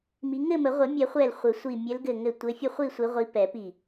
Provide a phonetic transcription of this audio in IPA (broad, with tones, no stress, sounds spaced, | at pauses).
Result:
m i˨˦ ŋ ɘ˥˨ m ə˨˩˦ ʁʷ ɘ˨˩˦ mʲ ɛ˨˩˦ χʷ ɛ˧˩ l χʷ ɘ˨˩˦ sʷ i˧˩ mʲ ɘ˨˦ l ɡ ɘ˧˩ ŋ ɘ˧˩ tʷ ɘ˨˦ fʲ ə˥˨ χʷ i˥˨ sʷ i˨˦ ʁʷ i˨˦ p ɛ˨˩˦ p i˧˩